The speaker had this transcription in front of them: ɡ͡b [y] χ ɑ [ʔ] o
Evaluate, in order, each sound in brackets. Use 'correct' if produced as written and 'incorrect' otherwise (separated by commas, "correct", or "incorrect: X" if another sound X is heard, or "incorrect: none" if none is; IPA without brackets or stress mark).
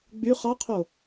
correct, incorrect: qʰ